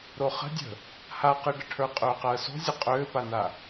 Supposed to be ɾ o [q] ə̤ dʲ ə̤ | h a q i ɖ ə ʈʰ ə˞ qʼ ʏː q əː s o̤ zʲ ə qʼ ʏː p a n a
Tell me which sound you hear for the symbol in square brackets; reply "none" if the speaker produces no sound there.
χ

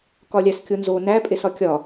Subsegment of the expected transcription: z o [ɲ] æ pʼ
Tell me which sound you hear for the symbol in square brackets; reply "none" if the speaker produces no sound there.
n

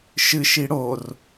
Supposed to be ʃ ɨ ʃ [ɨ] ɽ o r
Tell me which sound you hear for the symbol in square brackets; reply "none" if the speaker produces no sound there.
i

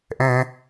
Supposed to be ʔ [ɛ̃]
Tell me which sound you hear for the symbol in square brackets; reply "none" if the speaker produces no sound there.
ɛ̃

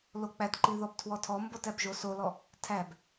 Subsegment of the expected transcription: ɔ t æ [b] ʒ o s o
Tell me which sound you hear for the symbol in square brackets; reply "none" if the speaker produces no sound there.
b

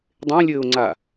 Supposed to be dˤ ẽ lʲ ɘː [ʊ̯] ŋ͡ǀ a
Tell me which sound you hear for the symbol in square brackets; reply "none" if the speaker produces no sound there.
ʊ̯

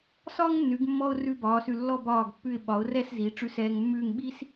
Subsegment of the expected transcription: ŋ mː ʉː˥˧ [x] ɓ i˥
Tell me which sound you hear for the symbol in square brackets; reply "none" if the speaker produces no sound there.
ŋ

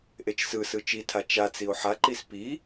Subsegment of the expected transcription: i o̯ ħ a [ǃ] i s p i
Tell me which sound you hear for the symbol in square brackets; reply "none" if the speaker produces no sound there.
ǃ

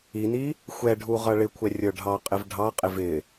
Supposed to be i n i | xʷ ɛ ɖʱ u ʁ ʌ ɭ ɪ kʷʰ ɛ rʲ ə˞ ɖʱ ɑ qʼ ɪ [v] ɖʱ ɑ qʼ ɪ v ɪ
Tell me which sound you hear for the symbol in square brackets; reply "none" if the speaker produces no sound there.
v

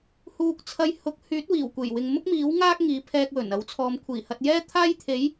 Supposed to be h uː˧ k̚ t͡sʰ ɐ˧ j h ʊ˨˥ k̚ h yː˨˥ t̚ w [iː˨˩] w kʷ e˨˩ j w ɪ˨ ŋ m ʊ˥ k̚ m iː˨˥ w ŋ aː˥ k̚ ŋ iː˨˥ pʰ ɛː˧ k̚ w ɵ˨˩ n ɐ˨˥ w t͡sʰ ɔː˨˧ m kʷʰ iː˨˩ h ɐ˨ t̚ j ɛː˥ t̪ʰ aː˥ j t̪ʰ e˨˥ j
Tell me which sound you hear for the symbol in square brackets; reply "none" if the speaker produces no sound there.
iː˨˩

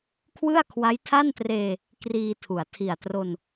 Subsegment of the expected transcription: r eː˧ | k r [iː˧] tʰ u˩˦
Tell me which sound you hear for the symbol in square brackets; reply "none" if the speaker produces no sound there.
iː˧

